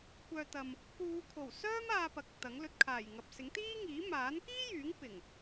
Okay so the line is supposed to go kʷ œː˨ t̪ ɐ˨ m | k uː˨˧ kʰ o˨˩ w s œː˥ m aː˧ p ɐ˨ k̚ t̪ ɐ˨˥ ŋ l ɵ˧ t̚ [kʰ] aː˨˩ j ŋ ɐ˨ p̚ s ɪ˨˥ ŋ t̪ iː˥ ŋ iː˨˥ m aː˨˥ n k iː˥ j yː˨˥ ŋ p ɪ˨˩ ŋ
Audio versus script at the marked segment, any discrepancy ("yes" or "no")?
no